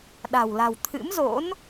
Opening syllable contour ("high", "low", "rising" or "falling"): low